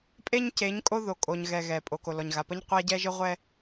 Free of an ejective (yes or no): no